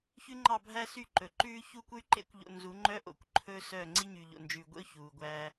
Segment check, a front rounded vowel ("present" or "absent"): present